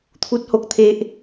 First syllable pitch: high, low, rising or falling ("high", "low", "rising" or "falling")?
high